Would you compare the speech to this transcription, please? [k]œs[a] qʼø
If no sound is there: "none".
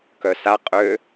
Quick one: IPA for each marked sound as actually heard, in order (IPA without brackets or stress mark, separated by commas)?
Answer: k, a